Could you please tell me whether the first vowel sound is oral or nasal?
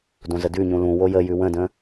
nasal